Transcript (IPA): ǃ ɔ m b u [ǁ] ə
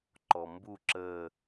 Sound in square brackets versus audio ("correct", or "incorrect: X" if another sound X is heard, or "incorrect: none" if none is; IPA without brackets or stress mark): correct